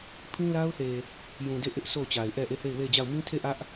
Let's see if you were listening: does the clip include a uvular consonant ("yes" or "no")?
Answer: no